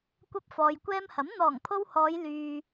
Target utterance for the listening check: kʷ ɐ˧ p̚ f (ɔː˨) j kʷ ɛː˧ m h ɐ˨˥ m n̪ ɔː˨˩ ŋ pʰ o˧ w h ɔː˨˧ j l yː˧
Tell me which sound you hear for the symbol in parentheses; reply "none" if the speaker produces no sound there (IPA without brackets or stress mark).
ɔː˨